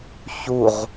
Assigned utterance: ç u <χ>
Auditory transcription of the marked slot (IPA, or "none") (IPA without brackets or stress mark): ʁ